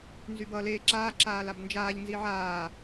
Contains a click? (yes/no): yes